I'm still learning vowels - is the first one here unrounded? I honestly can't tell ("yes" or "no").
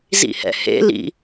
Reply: yes